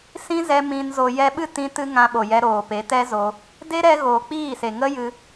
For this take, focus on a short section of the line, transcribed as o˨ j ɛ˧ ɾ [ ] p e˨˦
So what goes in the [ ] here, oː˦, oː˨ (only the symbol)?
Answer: oː˨